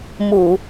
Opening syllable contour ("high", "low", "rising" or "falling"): low